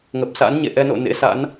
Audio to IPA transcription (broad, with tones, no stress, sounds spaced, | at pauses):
ŋ ə˨˩ p̚ s a̰˧˥ n ɲ ḛ˧˨ ʔ ɛ˧ n o̰˧˨ n ḛ˧˥ s a̰˧˥ n